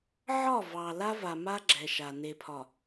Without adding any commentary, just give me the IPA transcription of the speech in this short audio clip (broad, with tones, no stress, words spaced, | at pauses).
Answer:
ʕɒ˦˨vɑ˨ la˦va˨ ma˦ɡ͡ǁɛ˨ ʃa˨ ne˨pʰɒ˨